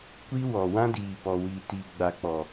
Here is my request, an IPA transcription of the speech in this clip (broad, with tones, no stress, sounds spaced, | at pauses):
kʷ i˦ w ɔ˨ w ã˦ d iː˨ p ɔ˨ w i˨ t i˨ ɡ͡b a˨ k͡p ɔ˨